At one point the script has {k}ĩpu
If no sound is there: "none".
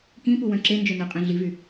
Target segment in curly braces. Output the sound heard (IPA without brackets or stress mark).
k